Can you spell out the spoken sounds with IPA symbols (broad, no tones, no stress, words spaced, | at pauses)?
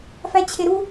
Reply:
fæt͡ɕʰeɾu